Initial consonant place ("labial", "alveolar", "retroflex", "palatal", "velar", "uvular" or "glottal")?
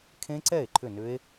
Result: velar